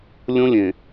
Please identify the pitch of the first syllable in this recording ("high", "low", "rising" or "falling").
high